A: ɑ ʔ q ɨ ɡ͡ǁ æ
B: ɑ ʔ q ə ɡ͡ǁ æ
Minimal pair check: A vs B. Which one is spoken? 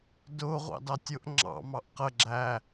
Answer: B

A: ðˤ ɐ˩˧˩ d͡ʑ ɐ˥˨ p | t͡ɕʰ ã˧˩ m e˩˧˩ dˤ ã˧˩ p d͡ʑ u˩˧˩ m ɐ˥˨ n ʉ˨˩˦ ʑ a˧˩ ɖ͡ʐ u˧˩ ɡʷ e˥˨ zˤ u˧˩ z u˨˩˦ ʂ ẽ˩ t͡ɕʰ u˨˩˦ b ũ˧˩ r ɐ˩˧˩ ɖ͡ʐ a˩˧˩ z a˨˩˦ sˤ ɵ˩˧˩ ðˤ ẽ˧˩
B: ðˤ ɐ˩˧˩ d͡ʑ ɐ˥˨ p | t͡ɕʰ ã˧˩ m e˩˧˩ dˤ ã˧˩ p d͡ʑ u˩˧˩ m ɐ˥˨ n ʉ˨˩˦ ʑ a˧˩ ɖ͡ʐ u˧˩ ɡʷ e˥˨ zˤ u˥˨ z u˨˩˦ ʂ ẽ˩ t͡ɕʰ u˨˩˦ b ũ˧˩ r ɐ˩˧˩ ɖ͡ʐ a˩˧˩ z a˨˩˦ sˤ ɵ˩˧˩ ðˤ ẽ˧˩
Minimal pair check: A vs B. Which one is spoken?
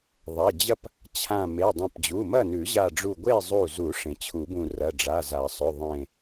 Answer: A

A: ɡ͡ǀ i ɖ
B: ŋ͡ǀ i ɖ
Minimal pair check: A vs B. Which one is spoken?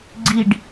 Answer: A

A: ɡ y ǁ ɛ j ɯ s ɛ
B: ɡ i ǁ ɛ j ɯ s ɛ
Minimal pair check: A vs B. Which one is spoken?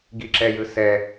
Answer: B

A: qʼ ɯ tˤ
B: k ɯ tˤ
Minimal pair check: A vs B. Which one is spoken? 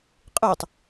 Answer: A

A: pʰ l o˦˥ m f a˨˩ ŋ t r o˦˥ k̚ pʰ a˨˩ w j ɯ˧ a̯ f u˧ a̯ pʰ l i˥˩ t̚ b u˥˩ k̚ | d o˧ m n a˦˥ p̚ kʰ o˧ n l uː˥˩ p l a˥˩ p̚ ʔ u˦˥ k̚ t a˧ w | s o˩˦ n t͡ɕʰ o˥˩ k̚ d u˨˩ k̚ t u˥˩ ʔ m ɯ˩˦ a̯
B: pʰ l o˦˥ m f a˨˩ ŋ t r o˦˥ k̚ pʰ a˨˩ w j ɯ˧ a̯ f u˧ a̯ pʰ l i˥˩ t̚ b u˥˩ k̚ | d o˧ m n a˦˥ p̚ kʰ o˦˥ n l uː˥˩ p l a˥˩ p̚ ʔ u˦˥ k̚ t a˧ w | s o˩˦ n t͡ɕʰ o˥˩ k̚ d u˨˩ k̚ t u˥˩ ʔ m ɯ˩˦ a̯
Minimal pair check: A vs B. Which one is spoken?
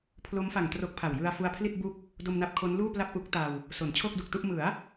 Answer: B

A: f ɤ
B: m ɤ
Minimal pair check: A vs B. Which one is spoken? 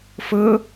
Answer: A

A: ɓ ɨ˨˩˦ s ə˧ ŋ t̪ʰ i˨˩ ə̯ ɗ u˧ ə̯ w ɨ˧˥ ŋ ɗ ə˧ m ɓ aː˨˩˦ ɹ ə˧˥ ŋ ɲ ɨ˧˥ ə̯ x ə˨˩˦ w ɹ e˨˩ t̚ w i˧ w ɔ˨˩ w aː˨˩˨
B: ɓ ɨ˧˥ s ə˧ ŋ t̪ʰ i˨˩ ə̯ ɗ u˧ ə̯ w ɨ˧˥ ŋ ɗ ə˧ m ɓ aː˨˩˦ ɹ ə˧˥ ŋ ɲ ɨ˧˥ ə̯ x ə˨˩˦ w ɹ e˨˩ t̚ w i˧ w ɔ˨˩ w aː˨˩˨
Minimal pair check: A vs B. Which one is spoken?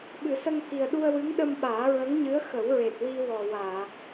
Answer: A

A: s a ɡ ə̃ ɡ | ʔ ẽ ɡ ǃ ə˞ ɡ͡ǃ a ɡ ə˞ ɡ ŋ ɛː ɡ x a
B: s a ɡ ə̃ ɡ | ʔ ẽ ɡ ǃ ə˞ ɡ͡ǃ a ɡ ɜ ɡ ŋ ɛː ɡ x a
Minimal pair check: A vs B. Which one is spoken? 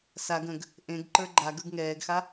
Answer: A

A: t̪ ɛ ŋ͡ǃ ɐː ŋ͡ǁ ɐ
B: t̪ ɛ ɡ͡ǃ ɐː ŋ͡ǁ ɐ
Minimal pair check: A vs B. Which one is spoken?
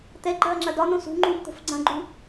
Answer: B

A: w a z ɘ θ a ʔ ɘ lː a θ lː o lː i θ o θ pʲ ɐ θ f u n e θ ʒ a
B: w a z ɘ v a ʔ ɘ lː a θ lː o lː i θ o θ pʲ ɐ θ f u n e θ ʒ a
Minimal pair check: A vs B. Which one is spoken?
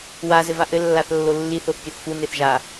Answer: B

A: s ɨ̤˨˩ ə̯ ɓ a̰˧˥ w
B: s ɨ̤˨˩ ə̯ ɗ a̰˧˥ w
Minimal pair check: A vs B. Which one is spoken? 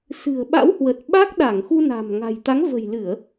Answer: A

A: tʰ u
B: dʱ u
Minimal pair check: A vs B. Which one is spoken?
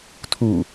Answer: A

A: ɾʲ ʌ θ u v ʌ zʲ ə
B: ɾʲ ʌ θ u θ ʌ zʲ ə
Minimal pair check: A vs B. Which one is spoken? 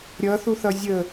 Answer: B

